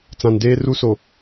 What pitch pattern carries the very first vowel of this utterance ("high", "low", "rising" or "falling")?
low